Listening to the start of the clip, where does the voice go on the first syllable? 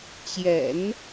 low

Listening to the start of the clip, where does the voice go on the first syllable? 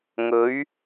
rising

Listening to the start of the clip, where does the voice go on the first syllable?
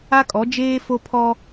high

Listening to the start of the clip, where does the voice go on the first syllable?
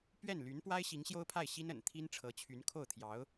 falling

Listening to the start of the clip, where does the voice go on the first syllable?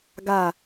falling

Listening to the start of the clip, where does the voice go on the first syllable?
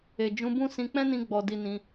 low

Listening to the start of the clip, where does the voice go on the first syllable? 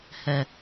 low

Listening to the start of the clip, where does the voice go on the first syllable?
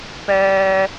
high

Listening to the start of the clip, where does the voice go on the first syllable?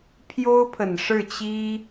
high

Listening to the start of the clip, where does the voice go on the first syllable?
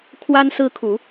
high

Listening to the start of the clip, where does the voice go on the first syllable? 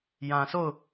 low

